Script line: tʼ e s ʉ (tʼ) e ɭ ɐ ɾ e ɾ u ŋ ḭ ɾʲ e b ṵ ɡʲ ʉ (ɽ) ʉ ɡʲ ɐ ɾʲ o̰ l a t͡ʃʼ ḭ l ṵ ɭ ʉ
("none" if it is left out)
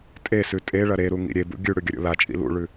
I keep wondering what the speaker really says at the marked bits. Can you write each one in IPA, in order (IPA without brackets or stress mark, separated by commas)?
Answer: tʼ, ɽ